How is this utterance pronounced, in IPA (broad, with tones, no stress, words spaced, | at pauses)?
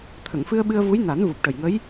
t̪ʰə˨˩˨ŋfɨ˧ə̯ɓɨ˧ə̯ vu˧˥j na˨˩˦n vu˨˩p̚ʈə˨˩jŋə˧˥j